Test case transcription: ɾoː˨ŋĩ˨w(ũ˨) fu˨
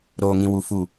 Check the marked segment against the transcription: incorrect: u˨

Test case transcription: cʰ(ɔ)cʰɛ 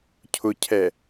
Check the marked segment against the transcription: incorrect: ʊ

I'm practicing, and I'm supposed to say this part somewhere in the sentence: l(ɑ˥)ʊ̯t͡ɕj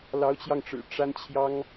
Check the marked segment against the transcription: incorrect: ɑ˧˥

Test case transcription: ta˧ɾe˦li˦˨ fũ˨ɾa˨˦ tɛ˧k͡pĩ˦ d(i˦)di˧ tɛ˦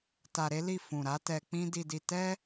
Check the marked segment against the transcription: incorrect: i˧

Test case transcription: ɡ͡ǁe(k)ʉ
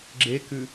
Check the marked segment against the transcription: correct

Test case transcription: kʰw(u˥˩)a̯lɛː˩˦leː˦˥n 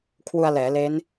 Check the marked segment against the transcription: incorrect: u˧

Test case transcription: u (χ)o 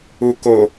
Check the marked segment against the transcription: incorrect: k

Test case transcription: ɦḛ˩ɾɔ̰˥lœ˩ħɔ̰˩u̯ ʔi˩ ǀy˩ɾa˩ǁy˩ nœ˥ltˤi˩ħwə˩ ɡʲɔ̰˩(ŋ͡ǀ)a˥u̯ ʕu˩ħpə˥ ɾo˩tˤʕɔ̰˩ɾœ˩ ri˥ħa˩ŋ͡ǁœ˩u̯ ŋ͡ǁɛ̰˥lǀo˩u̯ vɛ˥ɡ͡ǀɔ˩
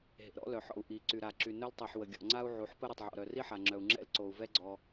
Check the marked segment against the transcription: correct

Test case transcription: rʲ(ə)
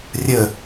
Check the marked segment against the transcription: correct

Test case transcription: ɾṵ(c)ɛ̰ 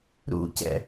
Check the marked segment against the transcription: correct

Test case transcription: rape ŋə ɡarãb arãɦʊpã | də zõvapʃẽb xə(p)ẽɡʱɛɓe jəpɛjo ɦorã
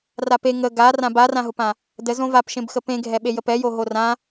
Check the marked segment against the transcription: correct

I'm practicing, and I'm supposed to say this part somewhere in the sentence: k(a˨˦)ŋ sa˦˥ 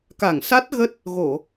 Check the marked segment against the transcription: incorrect: a˧˩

